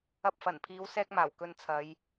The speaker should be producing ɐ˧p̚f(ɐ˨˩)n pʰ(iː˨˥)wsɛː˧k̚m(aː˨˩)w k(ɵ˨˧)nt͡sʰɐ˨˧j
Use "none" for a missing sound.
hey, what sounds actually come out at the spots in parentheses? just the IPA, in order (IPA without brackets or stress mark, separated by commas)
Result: ɐ˨˩, iː˨˧, aː˨˩, ɵ˧